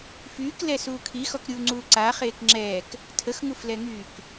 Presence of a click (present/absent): present